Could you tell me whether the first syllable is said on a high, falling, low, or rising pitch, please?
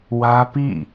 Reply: high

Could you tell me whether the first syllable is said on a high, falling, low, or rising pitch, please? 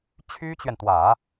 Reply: high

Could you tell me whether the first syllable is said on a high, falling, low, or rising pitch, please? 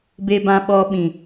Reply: low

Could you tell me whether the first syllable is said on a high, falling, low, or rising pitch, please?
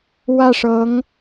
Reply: falling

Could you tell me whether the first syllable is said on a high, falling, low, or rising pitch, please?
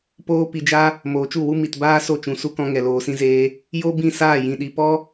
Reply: high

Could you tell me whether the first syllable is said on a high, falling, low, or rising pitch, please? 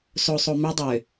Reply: low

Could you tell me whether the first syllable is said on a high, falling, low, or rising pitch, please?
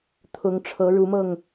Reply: rising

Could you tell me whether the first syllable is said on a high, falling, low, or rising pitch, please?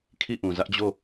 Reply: falling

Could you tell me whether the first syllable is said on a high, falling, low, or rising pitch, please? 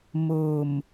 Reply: low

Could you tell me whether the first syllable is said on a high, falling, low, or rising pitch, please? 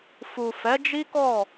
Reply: low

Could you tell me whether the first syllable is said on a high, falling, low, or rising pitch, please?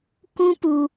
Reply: high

